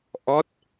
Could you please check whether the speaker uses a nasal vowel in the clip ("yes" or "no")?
no